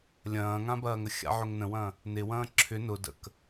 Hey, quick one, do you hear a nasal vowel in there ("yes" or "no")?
yes